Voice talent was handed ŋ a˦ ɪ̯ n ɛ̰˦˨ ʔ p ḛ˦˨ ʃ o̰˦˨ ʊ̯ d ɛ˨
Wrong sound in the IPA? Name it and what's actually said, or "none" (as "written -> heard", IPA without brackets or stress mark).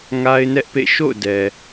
ɛ̰˦˨ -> ɛ˦